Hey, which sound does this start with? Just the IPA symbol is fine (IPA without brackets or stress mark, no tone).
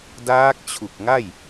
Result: d